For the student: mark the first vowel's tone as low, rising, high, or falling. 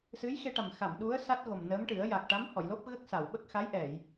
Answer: rising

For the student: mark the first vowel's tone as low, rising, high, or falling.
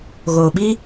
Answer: low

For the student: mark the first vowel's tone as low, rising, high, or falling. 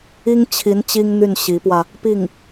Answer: high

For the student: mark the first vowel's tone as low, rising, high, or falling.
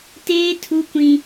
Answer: high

